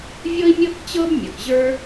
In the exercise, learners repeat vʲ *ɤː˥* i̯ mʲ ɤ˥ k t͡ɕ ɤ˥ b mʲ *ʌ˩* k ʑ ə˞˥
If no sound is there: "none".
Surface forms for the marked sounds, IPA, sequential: ɤ˥, ʌ˩

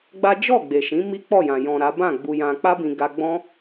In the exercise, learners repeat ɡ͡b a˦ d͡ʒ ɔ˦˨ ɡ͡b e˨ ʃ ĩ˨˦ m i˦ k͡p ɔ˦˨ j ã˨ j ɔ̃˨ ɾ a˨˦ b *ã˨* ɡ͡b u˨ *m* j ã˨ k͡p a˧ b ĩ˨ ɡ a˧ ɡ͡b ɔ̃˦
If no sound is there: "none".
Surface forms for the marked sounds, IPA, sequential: ã˦˨, none

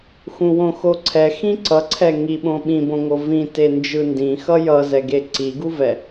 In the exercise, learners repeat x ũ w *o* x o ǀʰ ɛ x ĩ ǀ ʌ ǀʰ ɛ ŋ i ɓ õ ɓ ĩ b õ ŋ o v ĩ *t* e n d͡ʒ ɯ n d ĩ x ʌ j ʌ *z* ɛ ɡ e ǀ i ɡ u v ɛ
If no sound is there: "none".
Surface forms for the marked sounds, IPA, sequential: õ, t, z

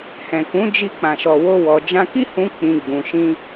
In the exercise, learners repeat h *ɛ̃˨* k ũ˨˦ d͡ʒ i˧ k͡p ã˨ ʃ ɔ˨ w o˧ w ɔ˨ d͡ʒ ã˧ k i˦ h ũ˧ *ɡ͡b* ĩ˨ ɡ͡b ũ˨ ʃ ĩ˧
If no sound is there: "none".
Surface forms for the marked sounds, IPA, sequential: ɛ̃˨, k͡p

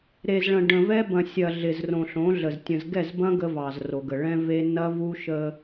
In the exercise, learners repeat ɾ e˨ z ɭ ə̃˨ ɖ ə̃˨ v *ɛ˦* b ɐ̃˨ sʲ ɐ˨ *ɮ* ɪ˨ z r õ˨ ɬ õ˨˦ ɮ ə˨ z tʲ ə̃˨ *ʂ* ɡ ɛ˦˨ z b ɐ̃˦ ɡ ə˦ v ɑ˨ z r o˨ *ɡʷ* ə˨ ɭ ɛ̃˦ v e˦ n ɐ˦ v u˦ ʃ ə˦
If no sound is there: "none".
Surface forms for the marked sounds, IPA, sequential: ɛ˦, ɮ, z, ɡ

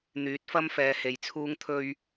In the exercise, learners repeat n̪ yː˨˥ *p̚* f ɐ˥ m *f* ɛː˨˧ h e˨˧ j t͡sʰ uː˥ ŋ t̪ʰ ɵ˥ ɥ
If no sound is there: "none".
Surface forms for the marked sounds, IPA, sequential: t̚, f

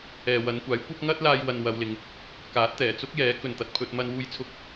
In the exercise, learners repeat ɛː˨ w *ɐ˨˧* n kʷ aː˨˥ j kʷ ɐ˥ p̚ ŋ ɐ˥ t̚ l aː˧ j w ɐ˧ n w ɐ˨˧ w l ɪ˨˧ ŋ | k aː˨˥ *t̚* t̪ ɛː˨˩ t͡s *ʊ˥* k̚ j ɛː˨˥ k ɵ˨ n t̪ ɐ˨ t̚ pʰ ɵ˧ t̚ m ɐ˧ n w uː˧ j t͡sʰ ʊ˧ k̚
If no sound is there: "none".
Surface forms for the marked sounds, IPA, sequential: ɐ˨˧, t̚, ʊ˥

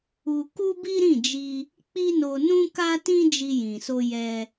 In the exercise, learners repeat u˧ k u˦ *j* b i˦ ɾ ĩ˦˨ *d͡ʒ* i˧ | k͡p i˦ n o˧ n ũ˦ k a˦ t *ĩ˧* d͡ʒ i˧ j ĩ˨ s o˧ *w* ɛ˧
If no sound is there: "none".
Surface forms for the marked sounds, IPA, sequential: none, d͡ʒ, ĩ˦, j

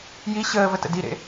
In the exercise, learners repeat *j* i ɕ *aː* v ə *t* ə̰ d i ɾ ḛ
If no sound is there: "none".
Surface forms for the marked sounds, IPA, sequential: j, əː, t

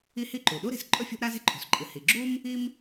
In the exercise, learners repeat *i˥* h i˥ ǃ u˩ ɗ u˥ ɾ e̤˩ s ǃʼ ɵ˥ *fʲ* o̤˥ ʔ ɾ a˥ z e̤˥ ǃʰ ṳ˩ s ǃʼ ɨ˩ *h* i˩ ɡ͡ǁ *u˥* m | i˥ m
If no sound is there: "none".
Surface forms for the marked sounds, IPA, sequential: i˥, fʲ, h, u˥

